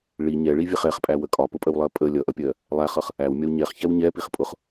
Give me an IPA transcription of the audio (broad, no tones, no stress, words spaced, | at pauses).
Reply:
ɭi ɲɛɭivʲɛχ ɛχpʼæwə kʼɒpʊpʼəwlˠɜ pʼə lʲʌʔʌpʲɜ | lˠæχʌχ | æwmʲɒw ɲɛχçɛw ɲɛpiχ pʼʊχ